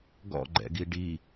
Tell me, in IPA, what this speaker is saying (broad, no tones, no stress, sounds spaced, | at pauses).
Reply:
ɡ ɔ̰ ɡ͡ǃ ɛ̰ ɡ i ɖ i